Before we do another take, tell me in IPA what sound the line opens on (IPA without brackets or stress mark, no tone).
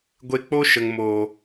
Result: ɡʷ